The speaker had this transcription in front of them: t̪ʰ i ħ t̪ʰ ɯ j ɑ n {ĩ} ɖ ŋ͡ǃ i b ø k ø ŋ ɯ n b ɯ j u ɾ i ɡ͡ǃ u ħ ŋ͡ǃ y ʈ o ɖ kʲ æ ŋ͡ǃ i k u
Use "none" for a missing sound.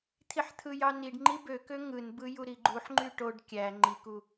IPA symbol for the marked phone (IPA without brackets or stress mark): i